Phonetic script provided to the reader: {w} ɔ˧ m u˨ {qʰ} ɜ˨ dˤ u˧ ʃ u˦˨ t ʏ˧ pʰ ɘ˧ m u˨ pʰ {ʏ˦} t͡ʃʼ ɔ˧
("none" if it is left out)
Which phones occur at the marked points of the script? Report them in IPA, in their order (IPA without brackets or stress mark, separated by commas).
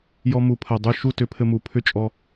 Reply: j, pʰ, ʏ˦